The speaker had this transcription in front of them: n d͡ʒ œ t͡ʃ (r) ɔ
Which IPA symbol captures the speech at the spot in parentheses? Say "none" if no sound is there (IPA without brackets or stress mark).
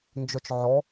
ʕ